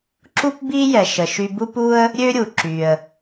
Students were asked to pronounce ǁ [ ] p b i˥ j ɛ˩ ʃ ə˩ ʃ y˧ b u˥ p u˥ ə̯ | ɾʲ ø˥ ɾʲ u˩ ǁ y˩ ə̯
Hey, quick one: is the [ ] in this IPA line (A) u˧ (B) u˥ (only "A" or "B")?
B